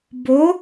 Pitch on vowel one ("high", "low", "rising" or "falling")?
rising